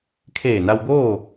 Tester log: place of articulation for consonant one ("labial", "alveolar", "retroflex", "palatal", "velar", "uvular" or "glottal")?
velar